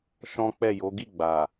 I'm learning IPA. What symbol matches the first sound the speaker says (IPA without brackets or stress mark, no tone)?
ʃ